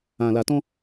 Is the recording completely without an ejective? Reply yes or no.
yes